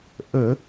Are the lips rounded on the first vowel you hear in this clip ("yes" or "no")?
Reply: no